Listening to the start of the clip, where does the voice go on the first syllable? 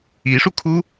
rising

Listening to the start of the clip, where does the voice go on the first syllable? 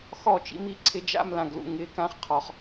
falling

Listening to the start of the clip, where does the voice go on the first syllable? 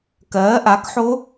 rising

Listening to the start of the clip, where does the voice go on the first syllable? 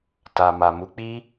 low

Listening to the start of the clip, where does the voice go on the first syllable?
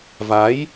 rising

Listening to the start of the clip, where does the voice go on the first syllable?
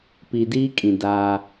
low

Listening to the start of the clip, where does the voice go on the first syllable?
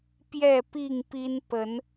falling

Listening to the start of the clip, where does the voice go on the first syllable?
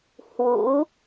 rising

